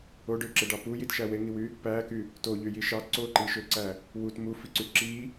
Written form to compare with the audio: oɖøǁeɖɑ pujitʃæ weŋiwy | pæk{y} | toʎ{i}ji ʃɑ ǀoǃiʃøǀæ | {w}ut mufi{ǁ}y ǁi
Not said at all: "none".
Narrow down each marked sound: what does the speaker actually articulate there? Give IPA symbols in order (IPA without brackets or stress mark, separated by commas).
y, y, w, ǀ